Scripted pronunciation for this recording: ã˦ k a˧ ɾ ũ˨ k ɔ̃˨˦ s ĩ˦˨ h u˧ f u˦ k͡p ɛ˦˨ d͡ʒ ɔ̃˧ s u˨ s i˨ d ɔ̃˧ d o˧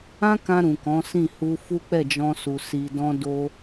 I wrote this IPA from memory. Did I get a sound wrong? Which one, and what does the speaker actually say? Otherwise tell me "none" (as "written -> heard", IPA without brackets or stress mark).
a˧ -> ã˧